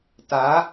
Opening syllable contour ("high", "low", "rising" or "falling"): rising